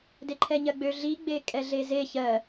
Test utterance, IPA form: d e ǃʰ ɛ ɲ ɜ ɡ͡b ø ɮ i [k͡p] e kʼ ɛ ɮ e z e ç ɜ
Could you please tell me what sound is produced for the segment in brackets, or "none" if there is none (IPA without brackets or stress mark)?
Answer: ɡ͡b